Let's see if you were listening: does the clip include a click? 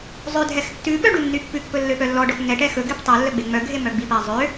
no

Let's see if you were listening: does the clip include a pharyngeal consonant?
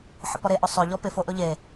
yes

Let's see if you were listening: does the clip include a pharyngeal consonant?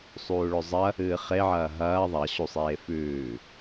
yes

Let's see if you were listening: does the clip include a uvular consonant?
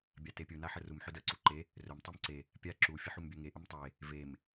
no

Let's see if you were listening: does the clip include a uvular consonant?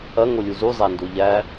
no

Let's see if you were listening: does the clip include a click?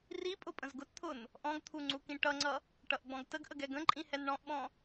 yes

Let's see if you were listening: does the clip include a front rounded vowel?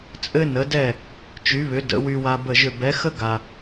yes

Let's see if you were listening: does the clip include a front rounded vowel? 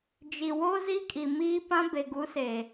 no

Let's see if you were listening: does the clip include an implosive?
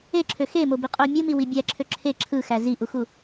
no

